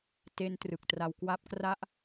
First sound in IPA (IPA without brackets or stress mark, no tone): t